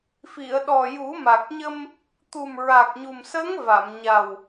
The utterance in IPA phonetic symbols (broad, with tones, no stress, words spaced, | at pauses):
fi˨˩˨ə̯ɗɔ˨˩ ju˨˩˦ma˨˩k̚ ɲə˧m | t̪u˨˩m ɹa˨˩k̚ɲu˨˩msə˧˥ŋ va˨˩˨mɲa˨˩w